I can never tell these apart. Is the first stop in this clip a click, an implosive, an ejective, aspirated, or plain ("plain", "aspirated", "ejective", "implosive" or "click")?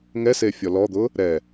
plain